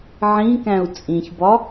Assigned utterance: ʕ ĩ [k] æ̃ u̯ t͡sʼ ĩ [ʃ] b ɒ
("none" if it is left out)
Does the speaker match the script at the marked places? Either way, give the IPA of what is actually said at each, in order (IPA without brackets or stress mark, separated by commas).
k, ç